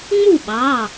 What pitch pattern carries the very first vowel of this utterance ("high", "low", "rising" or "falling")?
falling